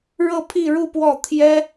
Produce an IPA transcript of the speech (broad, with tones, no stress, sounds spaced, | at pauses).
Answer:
ɻ ɤ˥˧ pʰ i˥˧ ɻ u˥˧ p w ɔ˥˩ t̪ʰ j ɛ˥